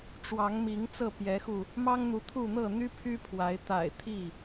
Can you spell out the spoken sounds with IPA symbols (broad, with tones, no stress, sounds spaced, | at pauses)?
ʈ͡ʂ w ɑ˨˦ ŋ m i˨˦ ŋ t͡s ɤ˥˨ p j ɛ˨˦ x u˧ | m ɑ˦ ŋ n̪ u˨˦ t̪ʰ u˥˨ n̪ ɤ˥˨ n̪ y˦ pʰ y˦ pʰ w a˨˦ ɪ̯ t̪ a̰˨˩ ɪ̯ t̪ʰ i˥˨